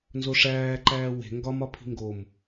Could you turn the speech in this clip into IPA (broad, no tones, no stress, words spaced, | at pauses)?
nzoʂæːǃæː we̤ ŋɡɒmɒ pʰi̤ŋɡom